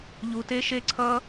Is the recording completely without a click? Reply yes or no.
no